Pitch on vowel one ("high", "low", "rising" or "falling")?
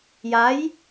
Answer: rising